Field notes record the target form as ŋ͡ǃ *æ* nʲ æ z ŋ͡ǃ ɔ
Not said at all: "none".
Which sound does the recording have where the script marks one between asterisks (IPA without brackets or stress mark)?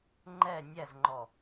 ɛ